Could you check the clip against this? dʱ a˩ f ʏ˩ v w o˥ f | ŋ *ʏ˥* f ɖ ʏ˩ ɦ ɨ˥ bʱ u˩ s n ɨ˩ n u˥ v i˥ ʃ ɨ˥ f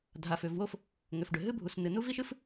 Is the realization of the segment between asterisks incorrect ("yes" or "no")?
yes